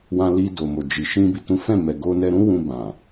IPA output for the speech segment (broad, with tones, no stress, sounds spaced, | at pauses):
w ã˧ l i˧ d o˨ m o˨ d͡ʒ i˨ ʃ ĩ˧ b i˨ t ũ˨˦ f ɛ̃˦˨ m ɛ˨ ɡ o˧ n ɛ˧ ɾ ũ˦ w ũ˧ b ã˨